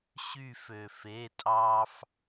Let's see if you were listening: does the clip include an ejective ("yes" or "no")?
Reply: yes